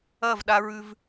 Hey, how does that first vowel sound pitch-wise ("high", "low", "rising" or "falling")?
falling